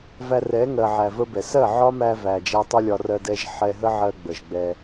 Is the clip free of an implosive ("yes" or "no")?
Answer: yes